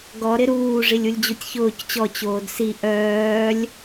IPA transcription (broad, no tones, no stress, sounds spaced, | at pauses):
ɡ ɔ ɾ ɪ ɾ uː ʐ i lʲ u lʲ d͡ʑ u tʲ ç ʊː c t͡ɕ ɔ t͡ɕ oː d s i ʔ œː lʲ